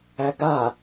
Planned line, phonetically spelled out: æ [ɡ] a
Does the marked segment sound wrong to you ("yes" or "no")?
no